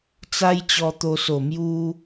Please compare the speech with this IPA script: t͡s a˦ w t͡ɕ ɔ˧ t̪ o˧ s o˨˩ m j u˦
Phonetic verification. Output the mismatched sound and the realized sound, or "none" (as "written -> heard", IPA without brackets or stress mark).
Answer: w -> j